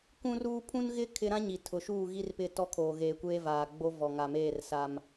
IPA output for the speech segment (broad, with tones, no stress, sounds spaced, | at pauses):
kʷ ũ˦ r uː˦ pʰ ũ˦ n ɣ ɪ˦ kʰ ɪ˦ ɾ ã˦ ɲ i˨ tʰ ʊ˨ ʃ uː˦˨ ɣ i˦ r p ɪ˦˨ t ɔ˦ kʰ oː˨ ɣ eː˨ kʷ eː˦ v aː˨ ɡ͡b o˦ v ɔ˨ ŋ a˨ m eː˦˨ r s a˦ m